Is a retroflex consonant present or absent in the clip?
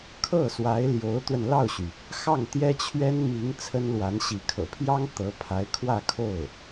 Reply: absent